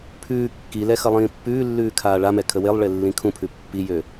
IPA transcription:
pʰ ʉː kː i l ɛ x ʌ lˠ ĩː pː ʉː lː ʉː kʰ aː ɭ a m ɛ kʰ ə w e lˠ ɭ e lː ĩ kʰ ũ pʰ ʉ pː i j ø

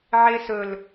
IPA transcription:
ʕ e s ɵ l

